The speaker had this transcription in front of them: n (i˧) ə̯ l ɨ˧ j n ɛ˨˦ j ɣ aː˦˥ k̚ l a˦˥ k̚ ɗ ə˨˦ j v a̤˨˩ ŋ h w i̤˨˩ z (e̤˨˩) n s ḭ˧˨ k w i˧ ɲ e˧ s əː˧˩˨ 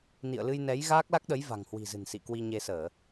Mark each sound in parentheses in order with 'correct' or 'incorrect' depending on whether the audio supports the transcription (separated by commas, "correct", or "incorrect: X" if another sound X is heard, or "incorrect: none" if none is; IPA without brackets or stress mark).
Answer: incorrect: ḭ˧˨, incorrect: ɨ̤˨˩